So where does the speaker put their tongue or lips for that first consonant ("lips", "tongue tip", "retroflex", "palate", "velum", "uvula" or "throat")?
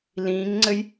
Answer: tongue tip